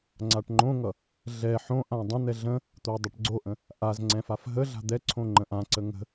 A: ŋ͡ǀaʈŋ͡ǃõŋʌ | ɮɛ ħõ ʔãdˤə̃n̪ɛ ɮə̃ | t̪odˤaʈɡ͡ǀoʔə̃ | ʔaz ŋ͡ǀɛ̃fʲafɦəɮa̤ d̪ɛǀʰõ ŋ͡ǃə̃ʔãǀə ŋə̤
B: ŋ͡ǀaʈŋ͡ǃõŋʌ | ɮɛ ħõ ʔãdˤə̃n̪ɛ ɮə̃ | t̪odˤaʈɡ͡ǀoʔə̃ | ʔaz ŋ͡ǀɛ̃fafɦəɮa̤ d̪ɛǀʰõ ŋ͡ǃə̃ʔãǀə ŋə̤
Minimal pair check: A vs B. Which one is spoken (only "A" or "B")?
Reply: B